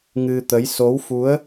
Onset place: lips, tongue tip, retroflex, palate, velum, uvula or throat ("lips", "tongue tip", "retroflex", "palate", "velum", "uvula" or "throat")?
velum